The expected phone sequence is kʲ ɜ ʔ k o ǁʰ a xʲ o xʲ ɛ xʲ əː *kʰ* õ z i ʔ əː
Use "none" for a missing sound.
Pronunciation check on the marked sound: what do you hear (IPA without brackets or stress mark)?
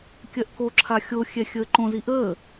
ǃ